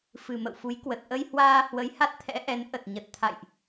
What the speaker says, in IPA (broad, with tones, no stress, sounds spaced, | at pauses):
f ɨ˨˩ m ə̰˧˨ w f u˨˦ j k w ə˨˩ t̚ ʔ ə˧ j h w aː˧ h w ə˨˦ j h a˦˥ t̚ t̪ʰ ɛ̰˧˥ ʔ ɛ˨˦ n ʔ ə˨˩ t̚ ɲ ə˨˩ t̚ t̪ʰ a̰˧˨ j ʔ